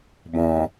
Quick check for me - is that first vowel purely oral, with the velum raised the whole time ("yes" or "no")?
no